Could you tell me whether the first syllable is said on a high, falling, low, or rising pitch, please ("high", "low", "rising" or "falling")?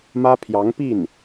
high